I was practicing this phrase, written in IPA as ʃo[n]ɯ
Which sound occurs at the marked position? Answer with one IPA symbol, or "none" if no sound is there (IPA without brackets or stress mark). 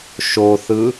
θ